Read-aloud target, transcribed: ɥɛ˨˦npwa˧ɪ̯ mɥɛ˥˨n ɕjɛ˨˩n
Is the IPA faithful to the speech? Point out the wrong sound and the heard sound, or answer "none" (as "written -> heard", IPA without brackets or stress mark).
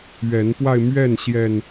none